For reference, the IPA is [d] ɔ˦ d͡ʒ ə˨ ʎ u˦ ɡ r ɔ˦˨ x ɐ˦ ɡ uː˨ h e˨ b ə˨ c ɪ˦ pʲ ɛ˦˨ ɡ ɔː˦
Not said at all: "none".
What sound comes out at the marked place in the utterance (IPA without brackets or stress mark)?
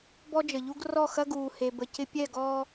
b